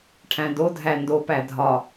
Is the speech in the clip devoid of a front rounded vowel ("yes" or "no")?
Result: yes